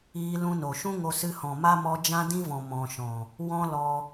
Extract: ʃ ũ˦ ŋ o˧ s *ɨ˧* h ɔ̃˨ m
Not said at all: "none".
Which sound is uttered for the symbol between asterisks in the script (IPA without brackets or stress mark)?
ɨ˧